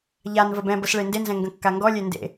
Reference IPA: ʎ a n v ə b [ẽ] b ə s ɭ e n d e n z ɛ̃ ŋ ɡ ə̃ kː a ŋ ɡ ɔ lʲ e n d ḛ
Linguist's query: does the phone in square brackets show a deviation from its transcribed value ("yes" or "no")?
yes